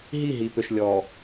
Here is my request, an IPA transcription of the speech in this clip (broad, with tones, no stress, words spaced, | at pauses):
ɦi˦˨ɦi˨pʏ˨ʃ lʲɔ˨